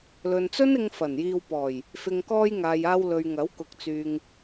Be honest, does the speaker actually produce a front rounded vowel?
yes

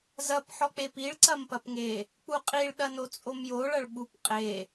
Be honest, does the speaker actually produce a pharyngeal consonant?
yes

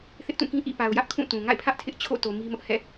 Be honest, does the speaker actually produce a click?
no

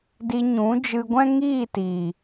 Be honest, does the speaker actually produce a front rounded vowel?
no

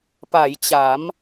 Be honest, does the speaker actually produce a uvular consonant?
no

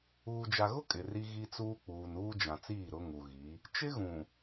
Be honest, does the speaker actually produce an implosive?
no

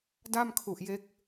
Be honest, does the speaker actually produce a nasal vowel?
no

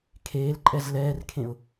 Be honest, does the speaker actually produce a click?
yes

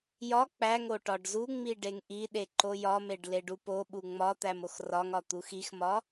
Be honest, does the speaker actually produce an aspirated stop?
no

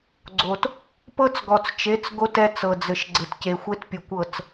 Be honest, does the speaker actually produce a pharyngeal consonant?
no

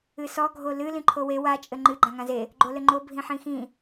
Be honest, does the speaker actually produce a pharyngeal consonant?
yes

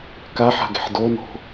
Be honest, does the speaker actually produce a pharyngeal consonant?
yes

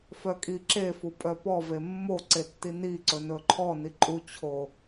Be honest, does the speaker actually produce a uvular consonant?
no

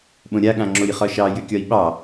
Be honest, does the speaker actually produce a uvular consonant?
yes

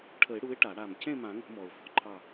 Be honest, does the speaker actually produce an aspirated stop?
yes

